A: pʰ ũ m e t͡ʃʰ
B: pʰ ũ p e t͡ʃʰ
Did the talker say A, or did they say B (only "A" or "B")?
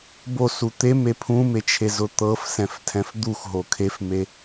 A